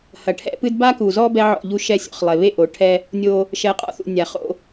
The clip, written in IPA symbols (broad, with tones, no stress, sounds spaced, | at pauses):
h ɐ˨ ʈʰ ɛ̰˦ p ɨ˦ d b a˦ k u˨ z ɔ˦ b ɛ˦ ʕ ɔ̰˦˨ ʎ u˦˨ ʃ ɛ˦ sʲ ɔ̰˨ χ lˠ e˨ β e˦ ʔ o˨˦ ʈʰ ɛ˦ | nʲ o˦ | ʃ ɛ˨˦ qʼ ɔ̰˦ θ ṵ˨ nʲ a˨ χ o̰˦